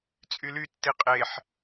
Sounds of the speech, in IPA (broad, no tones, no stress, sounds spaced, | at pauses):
t͡sʼ y l y tː i qʼ e ħ